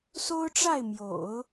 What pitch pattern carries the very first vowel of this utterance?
high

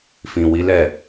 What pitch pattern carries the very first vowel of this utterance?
low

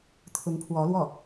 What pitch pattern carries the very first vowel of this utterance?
rising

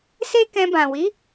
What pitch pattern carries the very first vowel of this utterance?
high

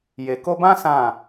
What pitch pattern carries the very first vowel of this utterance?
low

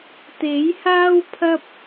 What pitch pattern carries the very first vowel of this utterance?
rising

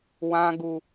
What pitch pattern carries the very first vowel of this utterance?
high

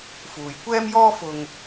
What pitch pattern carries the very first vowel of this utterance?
low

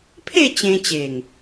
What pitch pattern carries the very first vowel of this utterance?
falling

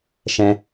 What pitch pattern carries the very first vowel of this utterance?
high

